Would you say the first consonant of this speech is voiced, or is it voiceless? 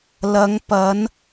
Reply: voiced